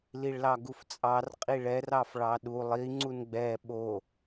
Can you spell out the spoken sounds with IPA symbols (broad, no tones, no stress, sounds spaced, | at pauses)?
l i ɭ l ɑ ɡ u f t͡sʼ ɑ r qʼ i ɭ ɛ r ɑ f ɭ ɑ ɗ u lˠ i ŋ͡ǀ u n ɡ͡b ɛ ɓ o